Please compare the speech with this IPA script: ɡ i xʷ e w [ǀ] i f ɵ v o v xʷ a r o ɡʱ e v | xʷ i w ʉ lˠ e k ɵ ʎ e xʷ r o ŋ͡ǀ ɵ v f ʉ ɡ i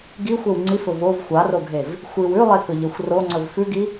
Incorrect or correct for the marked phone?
incorrect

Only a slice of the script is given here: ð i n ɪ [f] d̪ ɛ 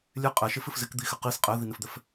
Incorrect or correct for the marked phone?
correct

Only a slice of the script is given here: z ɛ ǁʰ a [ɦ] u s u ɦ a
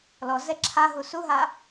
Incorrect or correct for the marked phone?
correct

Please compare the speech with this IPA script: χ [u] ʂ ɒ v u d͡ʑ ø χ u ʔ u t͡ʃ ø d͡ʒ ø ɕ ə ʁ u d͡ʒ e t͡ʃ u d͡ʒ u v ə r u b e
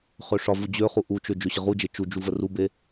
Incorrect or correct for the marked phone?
incorrect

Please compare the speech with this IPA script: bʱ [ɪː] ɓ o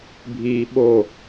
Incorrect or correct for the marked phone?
incorrect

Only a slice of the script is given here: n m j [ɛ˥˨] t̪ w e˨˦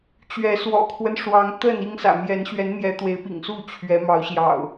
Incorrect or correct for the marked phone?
incorrect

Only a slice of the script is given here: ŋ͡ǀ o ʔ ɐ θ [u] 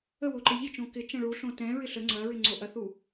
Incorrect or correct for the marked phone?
correct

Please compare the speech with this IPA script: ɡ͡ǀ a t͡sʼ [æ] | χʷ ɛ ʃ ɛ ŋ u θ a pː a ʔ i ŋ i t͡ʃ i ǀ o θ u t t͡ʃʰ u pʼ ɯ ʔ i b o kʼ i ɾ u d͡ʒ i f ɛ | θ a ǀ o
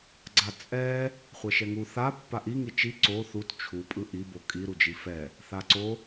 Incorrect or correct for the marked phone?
incorrect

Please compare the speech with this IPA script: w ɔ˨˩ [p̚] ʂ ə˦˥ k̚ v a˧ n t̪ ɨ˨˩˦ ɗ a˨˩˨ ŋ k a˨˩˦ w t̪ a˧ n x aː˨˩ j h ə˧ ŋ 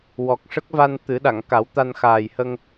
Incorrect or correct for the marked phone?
incorrect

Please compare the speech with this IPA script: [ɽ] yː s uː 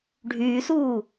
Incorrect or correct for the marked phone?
incorrect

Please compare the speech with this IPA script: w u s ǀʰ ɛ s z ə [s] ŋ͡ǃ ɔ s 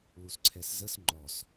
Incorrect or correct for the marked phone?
correct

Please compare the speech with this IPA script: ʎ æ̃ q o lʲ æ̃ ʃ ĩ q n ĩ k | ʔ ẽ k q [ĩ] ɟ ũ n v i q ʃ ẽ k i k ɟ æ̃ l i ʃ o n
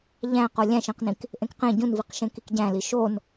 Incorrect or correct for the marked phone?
incorrect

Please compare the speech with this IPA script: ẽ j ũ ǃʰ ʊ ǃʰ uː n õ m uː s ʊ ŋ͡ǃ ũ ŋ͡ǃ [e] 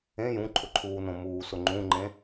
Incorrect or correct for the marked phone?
incorrect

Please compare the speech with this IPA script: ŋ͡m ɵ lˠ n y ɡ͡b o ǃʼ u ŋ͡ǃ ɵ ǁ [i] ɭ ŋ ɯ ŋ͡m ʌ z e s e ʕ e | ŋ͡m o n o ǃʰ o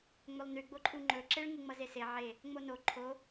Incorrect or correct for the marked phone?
incorrect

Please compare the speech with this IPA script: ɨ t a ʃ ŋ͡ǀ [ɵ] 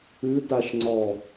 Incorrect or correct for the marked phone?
incorrect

